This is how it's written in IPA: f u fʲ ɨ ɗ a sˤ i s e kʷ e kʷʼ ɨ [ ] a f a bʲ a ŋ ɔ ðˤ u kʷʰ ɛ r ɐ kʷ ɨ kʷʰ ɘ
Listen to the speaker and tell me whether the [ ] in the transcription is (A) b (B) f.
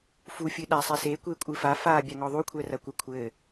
B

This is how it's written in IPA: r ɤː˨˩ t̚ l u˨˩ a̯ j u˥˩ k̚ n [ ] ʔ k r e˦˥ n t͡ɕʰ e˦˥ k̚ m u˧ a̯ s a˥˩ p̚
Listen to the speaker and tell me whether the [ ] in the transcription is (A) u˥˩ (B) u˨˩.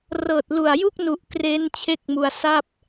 B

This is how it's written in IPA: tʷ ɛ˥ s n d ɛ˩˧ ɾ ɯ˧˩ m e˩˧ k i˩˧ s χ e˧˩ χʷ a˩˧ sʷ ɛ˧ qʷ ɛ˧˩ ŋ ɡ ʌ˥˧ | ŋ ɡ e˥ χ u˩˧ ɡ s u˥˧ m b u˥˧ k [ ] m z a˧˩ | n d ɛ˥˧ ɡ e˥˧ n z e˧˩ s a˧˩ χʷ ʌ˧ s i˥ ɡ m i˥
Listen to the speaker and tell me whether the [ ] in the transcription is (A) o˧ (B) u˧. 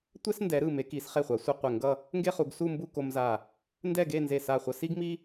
A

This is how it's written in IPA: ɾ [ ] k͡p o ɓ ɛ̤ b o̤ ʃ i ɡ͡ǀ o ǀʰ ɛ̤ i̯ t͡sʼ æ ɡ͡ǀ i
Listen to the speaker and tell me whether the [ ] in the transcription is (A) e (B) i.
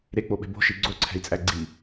A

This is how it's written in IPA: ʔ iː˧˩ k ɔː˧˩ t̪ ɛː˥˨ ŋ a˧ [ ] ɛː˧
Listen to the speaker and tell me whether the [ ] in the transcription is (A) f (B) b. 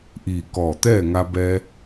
B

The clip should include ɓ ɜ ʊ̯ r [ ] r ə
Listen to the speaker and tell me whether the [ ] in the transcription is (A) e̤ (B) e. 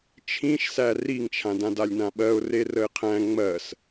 B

